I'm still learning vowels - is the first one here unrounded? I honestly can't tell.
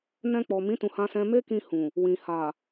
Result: yes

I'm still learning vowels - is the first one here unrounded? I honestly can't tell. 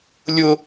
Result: no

